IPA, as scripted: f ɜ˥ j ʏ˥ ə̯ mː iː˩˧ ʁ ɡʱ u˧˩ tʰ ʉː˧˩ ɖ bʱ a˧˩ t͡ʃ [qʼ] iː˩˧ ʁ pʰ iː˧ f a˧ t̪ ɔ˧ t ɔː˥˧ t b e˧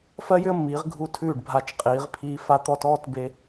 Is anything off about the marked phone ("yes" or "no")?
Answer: no